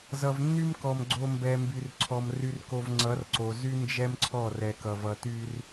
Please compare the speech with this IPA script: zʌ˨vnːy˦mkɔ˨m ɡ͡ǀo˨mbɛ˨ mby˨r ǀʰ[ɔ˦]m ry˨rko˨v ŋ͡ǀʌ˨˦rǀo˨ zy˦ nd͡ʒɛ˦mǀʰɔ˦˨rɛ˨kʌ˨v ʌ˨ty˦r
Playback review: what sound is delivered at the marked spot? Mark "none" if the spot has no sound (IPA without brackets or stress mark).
ɔ˨